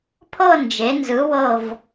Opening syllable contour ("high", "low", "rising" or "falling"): falling